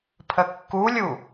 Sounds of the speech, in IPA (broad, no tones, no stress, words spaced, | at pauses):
pʰəkːulʲu